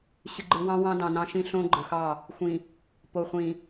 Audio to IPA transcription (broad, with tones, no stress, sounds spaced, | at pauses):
ɕ ɨ˨ ɡ͡ǃ ɯ˨ w ɑ̃˦ w ɑ̃˦ d ɑ̃˨ n ɑ̃˦ ʃ ĩ˦ ɬ õ˦ ɡ͡ǃ ɯ˨ x ɑ˦˨ | xʷ ĩ˨ | p o˨ χʷ ĩ˨